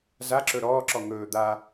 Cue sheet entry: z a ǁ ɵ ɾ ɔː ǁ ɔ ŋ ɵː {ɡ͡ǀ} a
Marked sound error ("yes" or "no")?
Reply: yes